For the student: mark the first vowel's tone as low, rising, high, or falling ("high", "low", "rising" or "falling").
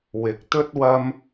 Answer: rising